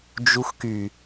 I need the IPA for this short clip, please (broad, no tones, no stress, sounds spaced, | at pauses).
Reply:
d͡ʒ u x k y